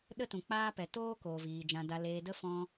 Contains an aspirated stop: no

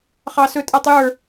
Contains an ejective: yes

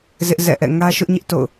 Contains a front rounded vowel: no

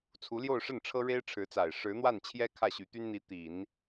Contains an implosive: no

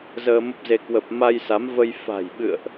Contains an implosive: yes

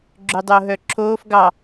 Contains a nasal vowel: no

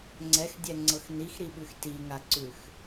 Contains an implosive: yes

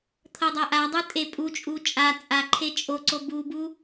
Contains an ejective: yes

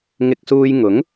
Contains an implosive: no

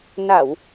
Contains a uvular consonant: no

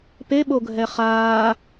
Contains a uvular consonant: yes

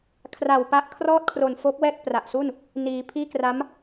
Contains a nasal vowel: no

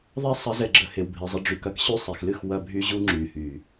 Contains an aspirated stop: no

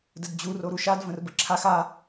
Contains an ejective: no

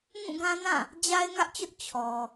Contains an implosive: no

